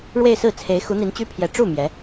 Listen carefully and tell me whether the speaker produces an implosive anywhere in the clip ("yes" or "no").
no